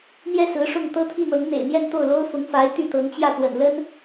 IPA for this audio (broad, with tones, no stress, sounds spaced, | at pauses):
n̪ j ɛ˥˩ s ɹ̩˧˥ ʂ ʊ˥˩ ŋ t̪ ɤ˥ t̪ʰ i˥˩ n̪ ɤ˧˥ ŋ n̪ ḛ˨˩ ɪ̯ n̪ j ɛ˥˧ n t̪ o˥˩ ʊ̯ l o˥ ʊ̯ f ʊ˧˥ ŋ f a˧˥ ɪ̯ t̪ y˥˩ t̪ ɤ˧˥ ŋ t͡ɕ j ä˥˩ t̪ w ə̰˨˩ n l ə˥ n